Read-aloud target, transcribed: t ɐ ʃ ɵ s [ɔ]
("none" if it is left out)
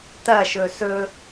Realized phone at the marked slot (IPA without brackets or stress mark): ɵ